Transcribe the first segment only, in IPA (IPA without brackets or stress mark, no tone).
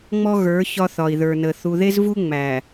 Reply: ŋ͡m